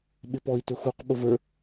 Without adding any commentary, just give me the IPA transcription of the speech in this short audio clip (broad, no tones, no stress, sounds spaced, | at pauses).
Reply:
ɓ ɪ p ɔ i̯ t ʊ x u q ɓ ʊ v ə˞